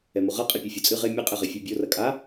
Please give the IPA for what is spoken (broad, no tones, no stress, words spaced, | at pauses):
ɛmoʁɐ qʼepʲɐfʲot͡sʼɨ ʁe mʲɘ qʼeʁefʲœbʲo rɐkʼa